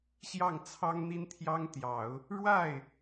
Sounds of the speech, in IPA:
ɕ j ɑ˥˩ ŋ t͡sʰ ɑ˥ ŋ n̪ i˥ n t̪ʰ j ɑ˥ ŋ t̪ j ɑ˨˩˦ ʊ̯ | ɻ w a˥˩ ɪ̯

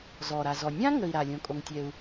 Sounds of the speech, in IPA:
z ɔː˩ ɾ a˩ z ɔ˩ nʲ ã˥ ŋ ə˩ i̯ ɾ a˩ lʲ õ˩ kʼ o˩ ŋ tʲ ɛ˩ u̯

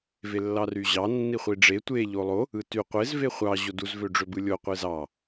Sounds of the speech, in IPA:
v e lː ɑ r y ʑ ɑ nː i χʷ i ɖ͡ʐ e tʷ e ʎ o lˠ o | ɯ t y qʷ e z v e χʷ ɑ ʑ o d u z v ø ɖ͡ʐ ø b ɯ lʲ o qʷ e z ɑ

